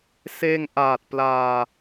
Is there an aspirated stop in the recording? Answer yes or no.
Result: no